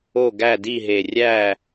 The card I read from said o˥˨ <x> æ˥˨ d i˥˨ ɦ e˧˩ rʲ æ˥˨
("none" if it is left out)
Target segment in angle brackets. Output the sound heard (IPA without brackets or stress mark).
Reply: ɡ